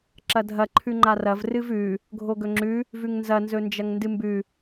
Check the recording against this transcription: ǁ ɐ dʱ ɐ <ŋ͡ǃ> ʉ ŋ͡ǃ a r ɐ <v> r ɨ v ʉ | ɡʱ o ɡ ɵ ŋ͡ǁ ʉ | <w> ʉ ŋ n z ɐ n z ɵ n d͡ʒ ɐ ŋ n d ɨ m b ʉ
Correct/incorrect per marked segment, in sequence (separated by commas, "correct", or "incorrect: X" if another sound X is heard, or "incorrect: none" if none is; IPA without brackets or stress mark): incorrect: ǃʰ, correct, incorrect: v